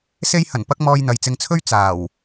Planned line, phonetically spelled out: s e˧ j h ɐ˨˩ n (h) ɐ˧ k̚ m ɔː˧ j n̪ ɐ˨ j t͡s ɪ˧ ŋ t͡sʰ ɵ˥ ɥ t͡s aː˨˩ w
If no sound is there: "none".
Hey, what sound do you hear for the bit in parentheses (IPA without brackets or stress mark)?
p